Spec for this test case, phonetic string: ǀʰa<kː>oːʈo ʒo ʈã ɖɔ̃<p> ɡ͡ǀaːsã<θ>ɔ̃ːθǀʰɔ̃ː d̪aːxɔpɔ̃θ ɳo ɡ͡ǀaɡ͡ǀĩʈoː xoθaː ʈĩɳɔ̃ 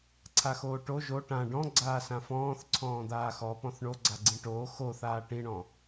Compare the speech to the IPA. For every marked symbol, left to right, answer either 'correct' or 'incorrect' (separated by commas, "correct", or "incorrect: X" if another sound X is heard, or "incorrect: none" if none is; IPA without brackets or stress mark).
incorrect: x, incorrect: none, incorrect: f